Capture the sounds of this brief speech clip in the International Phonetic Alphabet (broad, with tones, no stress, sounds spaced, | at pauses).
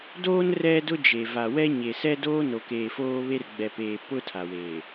d oː˦ n r ɛ˦ d ʊ˦ d͡ʒ e˨ v a˨ w ɛ˦ ɲ e˨ s ɛ˦ d oː˦ n o˨ k eː˨ f oː˦ β e˦ r ɡ͡b ɛ˨ p eː˨ p ʊ˦ tʰ a˨ w eː˨